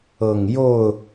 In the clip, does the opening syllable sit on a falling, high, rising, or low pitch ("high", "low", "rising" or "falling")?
low